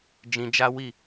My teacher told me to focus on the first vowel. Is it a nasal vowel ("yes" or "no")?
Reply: yes